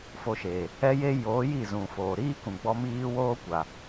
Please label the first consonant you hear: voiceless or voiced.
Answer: voiceless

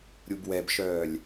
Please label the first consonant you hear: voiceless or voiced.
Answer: voiced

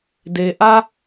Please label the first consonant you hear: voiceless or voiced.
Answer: voiced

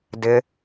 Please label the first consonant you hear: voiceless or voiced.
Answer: voiced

